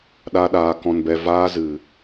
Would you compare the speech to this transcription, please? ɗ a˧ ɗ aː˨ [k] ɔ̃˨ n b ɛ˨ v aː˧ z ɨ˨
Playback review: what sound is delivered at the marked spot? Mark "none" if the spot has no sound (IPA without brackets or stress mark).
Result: k